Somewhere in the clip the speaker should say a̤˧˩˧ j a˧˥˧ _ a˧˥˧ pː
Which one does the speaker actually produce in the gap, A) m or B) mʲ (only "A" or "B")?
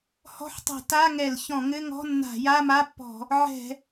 A